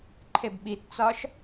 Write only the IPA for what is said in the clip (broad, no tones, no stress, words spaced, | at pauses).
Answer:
ǃʰebɓitt͡sɒʃ